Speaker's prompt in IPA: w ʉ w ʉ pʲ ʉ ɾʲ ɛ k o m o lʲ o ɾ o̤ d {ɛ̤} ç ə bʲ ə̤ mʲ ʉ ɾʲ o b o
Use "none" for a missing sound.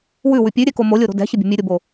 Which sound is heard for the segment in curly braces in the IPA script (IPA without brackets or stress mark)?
ɛ̤